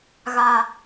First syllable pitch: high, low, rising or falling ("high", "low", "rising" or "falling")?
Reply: low